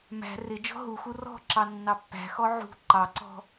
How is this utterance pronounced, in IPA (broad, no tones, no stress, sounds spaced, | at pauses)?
m æ̤ r ɪ d͡ʒ ɔ̤ ɦ u x u r ɔ̤ ǁ ɑ nː ɑ pː æ̤ x ɔ ʕ ṳ ǃ ɑ ǀ ɔ̤